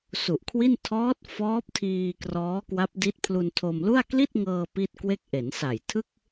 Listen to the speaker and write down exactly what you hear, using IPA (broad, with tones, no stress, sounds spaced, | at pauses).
s u˨˩ ʔ kʰ w i˥˩ n tʰ ɔː˦˥ t̚ f ɔː˦˥ p̚ tʰ iː˧ k r ɔː˦˥ k w a˦˥ p̚ d i˦˥ t̚ pʰ l u˧ n tʰ o˧ m l u˥˩ a̯ k l i˥˩ t̚ ŋ ɤː˧ p i˥˩ t̚ k w e˥˩ k̚ ʔ e˩˦ n s a˨˩ j tʰ ɯ˥˩ k̚